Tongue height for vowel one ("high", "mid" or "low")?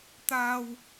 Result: low